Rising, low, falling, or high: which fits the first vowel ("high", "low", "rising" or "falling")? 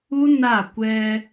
high